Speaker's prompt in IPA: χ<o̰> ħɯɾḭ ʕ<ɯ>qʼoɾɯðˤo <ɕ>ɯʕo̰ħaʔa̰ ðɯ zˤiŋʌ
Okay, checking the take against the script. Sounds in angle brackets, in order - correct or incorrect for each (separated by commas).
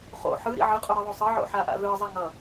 correct, correct, incorrect